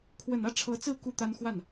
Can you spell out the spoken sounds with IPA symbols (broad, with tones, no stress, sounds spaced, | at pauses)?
kʰ w ə˨˩ n ä˥˩ ʈ͡ʂʰ ɤ˧˥ t͡s ɹ̩˥˧ k u˥˩ t̪ a˥ n x w a˥˩ n